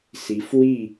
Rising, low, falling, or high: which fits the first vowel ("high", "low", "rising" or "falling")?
rising